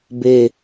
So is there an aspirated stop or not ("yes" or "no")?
no